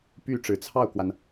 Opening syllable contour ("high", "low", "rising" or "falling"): falling